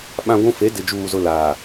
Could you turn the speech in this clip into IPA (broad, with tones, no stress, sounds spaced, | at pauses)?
ɓ ã˦ ɡʷ ũ˦ f e˨˦ d ɪ˨ d͡ʒ uː˨ z ʊ˦ l aː˨